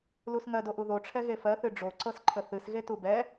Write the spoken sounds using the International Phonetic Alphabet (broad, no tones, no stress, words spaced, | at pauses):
lusŋɜdoʔu ðoʈ͡ʂʰɛ ɣefɜθɨ ɖ͡ʐoǀɤs ǃʰəθɨsɣetu bɛ